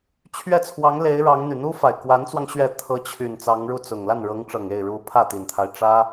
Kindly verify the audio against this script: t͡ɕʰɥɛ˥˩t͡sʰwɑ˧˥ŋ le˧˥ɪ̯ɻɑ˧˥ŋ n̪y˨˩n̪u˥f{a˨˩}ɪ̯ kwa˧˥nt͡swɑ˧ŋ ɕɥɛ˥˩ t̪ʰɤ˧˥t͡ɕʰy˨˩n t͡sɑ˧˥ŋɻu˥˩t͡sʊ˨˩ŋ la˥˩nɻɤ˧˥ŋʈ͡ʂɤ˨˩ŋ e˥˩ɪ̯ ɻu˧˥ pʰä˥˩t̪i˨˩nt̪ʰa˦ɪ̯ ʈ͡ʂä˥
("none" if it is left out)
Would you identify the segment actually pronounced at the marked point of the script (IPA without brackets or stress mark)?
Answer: a˨˩